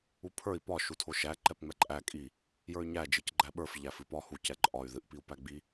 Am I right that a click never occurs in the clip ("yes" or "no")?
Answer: no